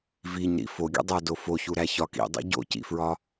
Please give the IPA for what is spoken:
v i ɲ ɾ ḭ f o ɡʲ o̰ dˤ æ d o f o ç u ɾ æ ç ɒ k ḭ dˤ ḭ ɟ o̰ c ḭ f ɹ ɒ

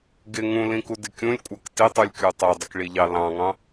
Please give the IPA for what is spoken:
ɡ ɪ ŋ ũ l ĩ k u d ɪ kʲ ũ lʲ kʷʼ ɜ k t ɪ tˤ u lʲ kʲ u tˤ ɜ dˤ ɪ k ɭ i ʎ ɑ l ɑ̃ ŋ ɑ̃

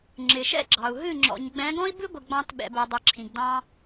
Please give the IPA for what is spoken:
ŋ͡ǁ ɪ˨ ʃ ɛ̰˦ ɡ͡ǁ ɑ˨ u̯ ɦ ɨ˦˨ ŋ͡ǁ ɔ̰˨ ɲ ɡ͡b ɛ̃˨˦ ɡ ɔ̃˦ i̯ b ɨ˦ ɡʷ ɪ˨ ɡ͡b ɑ̃˦ t ɓ ɛ̰˨ b ɛ˨ dˤ i˨ ǁʰ ĩ˨ ɡ d ɑ̃˦

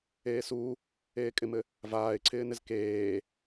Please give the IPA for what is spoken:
eː s u | eː kʼ ɪ m ɘ | v aː ɪ̯ ǀʰ ɪː n ɪ z k eː

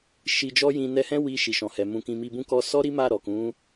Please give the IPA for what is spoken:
ʃ i˧ d͡ʒ ɔ˦ j ĩ˧ n ɛ˧ h ɛ̃˦ w i˧ ʃ i˨ ʃ ɔ̃˨ h ɛ˨ m ũ˧ k ĩ˧ m i˧ b ũ˦ k ɔ˧ s ɔ˦ ɾ i˦ m a˦˨ ɾ ɔ˨ k ũ˨˦

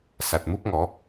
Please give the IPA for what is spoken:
s a˨ t̚ m u˦ p̚ ŋ ɔ˨˦

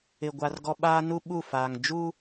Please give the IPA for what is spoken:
ɪ˨ ɡʷ a˨ r ɡ ɔ˨ ɓ aː˦ n u˦ ɓ u˦˨ f aː˨ ŋ d͡ʒ u˦

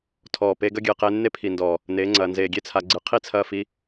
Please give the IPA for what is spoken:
tʰ ɔː˨ p e˧ ɡ ɐ˦ ɡʲ ɨː˨ q eː˧ nː e˦ pʰ i˨ n d ɔː˨ | n eː˨˦ ŋ͡ǀ ɐː˨ n z eː˨ ɡʲ e˦ t͡sʰ a˨ ɡ͡ǀ ɨ˨˦ qʰ i˦˨ t͡sʰ ɐː˧ f i˨˦

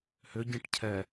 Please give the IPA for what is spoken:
h ʏ ɟ ĩ ʈ cʰ ɛ

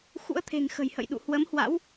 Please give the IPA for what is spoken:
x ṵ˧˥ ə̯ t̪ʰ e̤˨˩ ŋ x ə̤˨˩ j h ə̰˧˨ j ɗ ṵ˧˨ h w ə˨˦ m h w a̰˧˥ w

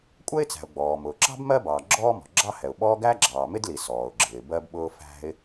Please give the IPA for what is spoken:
kʷʼ ɛ˥ ɪ̯ t͡s æ̤˩ ʊ̯ ɡ͡b ɔː˩ m ʊː˩ ǁ ɑ̤˥ b m ɜ˥ b ɑː˩ ɡ͡ǁ ɔː˥ m ɔ̤˩ ɡ͡ǁ ɑ˥ h ɛ˩ ʊ̯ ɓ ɔː˥ ɡ æ˥ ɡ͡ǁ ɑː˩ m ɪ˥ d l i˩ s ɔː˩ ʊ̯ ɡ͡ǁ ɪː˩ b ɜ˥ b ɓ ʊː˥ f æ̤˥ ɪ̯

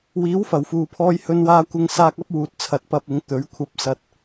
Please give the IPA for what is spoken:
w iː˨˥ w f ɐ˨˩ w f uː˨ pʰ ɔː˧ j h ɵ˧ n w aː˧ kʷ ɪ˧ ŋ s aː˧ k̚ ɐ˥ p̚ w uː˨ t̚ t͡sʰ ɐ˨ t̚ p ɐ˧ p̚ ɪ˨˧ ŋ t̪ ɵ˨˥ ɥ kʷʰ ɐ˧ p̚ s ɐ˧ t̚

